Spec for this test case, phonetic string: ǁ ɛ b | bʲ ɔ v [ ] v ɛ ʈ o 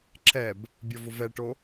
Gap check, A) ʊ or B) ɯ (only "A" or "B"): A